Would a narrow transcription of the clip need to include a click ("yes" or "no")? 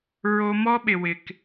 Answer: no